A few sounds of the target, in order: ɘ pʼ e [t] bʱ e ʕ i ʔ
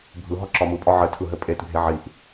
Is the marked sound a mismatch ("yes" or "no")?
no